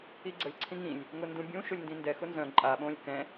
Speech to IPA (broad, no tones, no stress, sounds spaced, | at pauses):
i ɡ͡ǀ ə lʲ ǀʰ ĩ ŋ ĩ lʲ | ŋ ʊ n d ũ bʲ ũ ʃ ʊ lʲ n d ĩ n d ɛ x ʊ n z œ̃ ǃʼ a ɓ õː lʲ k ɛ̃